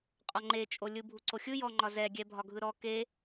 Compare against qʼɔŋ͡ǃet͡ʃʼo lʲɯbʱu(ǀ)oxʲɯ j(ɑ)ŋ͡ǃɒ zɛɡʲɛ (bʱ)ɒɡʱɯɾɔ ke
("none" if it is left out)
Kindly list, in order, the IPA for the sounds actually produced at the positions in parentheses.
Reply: ǀ, ɔ, bʱ

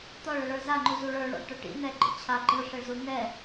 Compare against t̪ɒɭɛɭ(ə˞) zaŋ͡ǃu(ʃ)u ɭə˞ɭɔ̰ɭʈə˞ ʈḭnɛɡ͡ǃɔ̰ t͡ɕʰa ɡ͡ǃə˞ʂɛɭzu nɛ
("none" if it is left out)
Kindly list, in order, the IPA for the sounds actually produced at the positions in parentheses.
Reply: ə˞, z

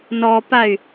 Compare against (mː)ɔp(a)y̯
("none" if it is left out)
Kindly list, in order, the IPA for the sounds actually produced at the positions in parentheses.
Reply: n, a

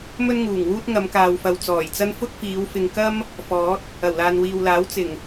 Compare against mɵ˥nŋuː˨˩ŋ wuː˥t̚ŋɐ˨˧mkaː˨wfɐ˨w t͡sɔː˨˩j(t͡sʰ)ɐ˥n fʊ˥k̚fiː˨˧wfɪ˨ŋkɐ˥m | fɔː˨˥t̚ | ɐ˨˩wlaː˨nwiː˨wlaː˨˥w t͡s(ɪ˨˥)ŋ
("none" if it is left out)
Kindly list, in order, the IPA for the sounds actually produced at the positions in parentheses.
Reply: t͡s, ɪ˨˩

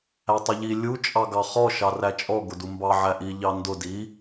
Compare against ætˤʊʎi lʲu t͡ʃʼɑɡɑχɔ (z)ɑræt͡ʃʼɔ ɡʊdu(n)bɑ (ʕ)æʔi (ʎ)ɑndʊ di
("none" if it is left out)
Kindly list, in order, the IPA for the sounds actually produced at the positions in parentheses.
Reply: ʃ, m, ʕ, ʎ

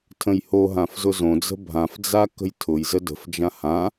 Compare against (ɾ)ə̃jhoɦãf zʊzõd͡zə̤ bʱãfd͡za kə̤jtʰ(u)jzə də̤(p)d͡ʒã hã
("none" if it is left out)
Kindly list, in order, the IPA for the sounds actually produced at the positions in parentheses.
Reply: tʰ, ʊ, f

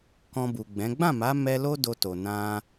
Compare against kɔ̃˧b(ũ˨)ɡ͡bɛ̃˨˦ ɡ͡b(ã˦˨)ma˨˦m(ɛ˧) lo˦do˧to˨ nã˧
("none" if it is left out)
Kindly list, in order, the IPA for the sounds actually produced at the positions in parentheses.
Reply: u˨, ã˦˨, ɛ˧

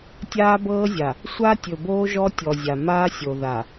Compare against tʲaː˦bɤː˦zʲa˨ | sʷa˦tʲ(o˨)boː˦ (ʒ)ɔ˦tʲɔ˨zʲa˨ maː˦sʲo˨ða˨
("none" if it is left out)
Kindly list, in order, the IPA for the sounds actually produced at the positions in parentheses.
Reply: ɵ˨, ʒ

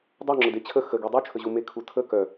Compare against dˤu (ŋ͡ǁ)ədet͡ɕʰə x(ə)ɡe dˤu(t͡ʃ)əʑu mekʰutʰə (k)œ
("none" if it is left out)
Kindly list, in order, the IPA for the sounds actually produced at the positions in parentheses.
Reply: ŋ͡ǁ, ə, t͡ʃʰ, k

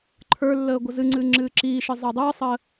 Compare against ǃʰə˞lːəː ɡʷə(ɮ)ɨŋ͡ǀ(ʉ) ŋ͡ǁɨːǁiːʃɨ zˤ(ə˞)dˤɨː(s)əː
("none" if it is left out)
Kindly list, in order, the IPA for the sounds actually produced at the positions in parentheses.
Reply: z, ɨ, ə˞, sˤ

